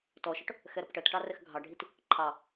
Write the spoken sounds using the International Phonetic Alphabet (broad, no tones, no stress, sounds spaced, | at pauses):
t ɔ ʃ ɔ ʈ | x ɛ ɾ ʌ p ʈ ɜ t ʈ ɑ r ɛ x ɡʱ ɑ ɖʱ i t | ǃʰ ɑ